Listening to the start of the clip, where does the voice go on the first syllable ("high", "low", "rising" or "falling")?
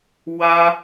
high